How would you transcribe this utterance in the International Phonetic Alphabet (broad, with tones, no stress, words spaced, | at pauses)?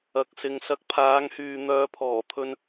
ɐ˨k̚sɪ˨ŋ sɐ˨˥k̚pʰaː˨˧ŋhyː˨ n̪œː˨pʰɔː˨˩t̪ʰɵ˧n